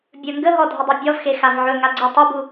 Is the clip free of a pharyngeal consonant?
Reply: no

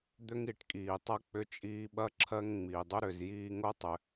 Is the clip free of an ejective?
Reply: no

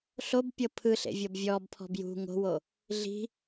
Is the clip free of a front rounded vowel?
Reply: yes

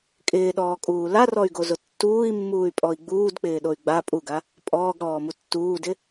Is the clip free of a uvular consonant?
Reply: yes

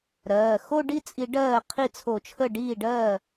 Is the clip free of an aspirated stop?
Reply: no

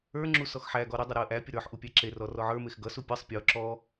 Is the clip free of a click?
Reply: no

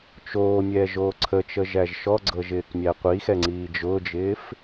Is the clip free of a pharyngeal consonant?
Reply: yes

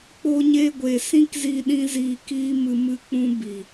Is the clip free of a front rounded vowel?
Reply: yes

